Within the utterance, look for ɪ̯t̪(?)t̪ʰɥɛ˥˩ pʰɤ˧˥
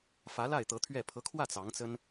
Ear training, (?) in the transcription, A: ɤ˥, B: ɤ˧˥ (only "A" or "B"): B